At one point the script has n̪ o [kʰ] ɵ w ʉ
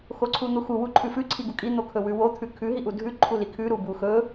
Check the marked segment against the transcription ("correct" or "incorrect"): correct